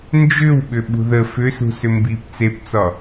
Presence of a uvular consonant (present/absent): absent